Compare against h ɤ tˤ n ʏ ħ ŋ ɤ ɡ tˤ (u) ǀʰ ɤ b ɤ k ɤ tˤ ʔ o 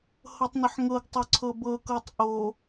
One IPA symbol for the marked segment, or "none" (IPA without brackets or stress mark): o